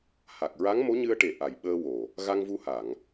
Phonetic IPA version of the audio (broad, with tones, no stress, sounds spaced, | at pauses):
h a˨˩ k̚ ɹ a˧˥ ŋ m o˧˥ ɲ ɨ˧ ə̯ ʈ e˨˩ ʔ a˨˩ j ɓ əː˧ w o˨˩ | ɣ a˧ ŋ v u˧ h a˨˩˨ ŋ